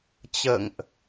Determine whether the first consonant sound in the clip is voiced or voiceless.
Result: voiceless